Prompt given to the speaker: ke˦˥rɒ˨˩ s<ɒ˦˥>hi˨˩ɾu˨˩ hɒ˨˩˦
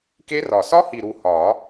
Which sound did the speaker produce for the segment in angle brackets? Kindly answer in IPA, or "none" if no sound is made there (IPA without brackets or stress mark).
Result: ɒ˦˥